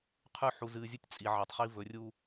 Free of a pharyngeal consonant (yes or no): no